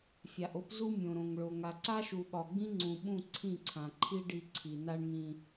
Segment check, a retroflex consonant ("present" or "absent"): present